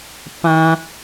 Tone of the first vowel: high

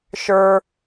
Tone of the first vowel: low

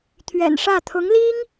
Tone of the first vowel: low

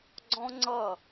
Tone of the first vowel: high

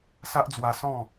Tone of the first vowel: high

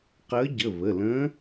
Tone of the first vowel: rising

